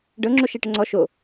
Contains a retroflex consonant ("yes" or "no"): yes